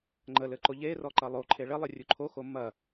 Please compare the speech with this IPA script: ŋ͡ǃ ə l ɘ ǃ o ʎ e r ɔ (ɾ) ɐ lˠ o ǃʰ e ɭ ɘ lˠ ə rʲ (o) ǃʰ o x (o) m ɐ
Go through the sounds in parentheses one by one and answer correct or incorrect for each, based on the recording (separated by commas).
incorrect, incorrect, correct